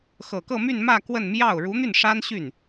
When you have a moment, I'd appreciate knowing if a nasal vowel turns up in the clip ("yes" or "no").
no